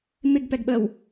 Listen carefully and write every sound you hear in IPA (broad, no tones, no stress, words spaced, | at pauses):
mɪɡpɛɡɓəw